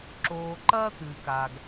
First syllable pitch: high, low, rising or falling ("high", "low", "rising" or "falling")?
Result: low